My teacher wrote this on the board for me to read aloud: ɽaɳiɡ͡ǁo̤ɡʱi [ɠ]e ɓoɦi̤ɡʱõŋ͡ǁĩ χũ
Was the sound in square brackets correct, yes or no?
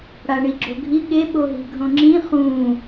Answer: yes